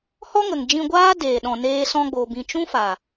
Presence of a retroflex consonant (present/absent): absent